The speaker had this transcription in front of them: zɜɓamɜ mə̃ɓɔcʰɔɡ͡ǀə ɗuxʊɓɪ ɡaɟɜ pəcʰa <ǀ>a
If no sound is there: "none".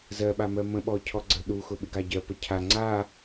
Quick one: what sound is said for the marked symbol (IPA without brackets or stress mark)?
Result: ŋ͡ǀ